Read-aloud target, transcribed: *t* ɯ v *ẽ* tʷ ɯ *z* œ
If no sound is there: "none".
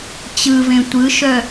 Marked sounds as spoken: t͡ɕ, ẽ, ʃ

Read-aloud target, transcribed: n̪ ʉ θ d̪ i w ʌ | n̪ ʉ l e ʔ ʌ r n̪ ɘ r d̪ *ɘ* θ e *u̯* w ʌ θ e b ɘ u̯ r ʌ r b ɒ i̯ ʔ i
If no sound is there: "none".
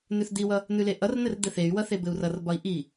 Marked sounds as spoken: ɘ, y̯

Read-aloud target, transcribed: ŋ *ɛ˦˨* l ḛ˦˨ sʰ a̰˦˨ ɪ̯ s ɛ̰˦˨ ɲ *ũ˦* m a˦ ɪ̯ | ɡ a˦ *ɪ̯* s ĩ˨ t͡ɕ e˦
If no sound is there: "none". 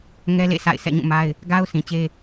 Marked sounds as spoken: ɛ˦, ũ˦˨, ʊ̯

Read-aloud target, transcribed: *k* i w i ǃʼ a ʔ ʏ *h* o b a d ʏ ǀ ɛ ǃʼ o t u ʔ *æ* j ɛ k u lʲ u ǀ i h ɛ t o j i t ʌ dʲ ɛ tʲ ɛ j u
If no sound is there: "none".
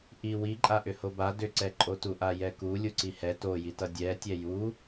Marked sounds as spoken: ʔ, h, a

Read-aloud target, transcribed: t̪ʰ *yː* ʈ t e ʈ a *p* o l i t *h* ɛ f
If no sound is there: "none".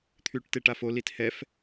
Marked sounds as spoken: yː, f, h

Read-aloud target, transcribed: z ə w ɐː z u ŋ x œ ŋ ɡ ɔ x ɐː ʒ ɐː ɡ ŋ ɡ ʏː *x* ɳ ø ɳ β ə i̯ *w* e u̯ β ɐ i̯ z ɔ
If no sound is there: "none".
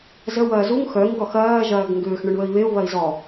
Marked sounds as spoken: x, β

